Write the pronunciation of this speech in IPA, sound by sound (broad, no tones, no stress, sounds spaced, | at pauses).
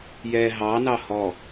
j ɛ ɦ ɑ n ɑ h ɔ